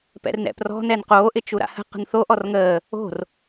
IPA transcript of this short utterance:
pɛ̰rnɛ̰prɔ̤ nɛnqoː ʔɪt͡ʃuɾa̰hə̤ qə̤nθo ʔɔrŋəː | o̤r

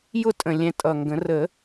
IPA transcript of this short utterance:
jʊ˥˨tʼə̃˨˩ lʲɛ̃˧tʼʌ˨˩ŋɡə̃˨˩˦ rə˨˩˦

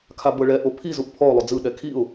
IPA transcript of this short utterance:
kʰabɤɭɛʔo pʰi zuʔpʰɔʊ̯lˠo d͡zɯɗɛ kʰiʊ̯

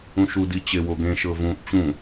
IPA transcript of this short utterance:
ũʃu dit͡ɕewoɡẽ ʃɤvũʔ t͡ɕũ

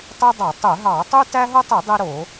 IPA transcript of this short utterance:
tˤy˦dˤɑ˧˩˧tˤø˧˩˧ɦɑ˧˩˧ tˤu˦tæ˦ɦo˦tˤe˧˩˧ dˤe˦ɾo˧˩˧

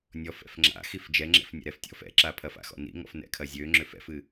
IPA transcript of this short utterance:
nʲɔfɛ̰f ŋ͡ǁa̰xif d͡ʒɛŋ͡ǁɛ̰f nʲa̰ɾɛftʲɔ̰f ɛ̰ǁapʰɐfa̰ xɔ̰nḭŋɔ̰f nɛ̰kʰɐzʲøŋ͡ǁʏf ɛ̰fɨ

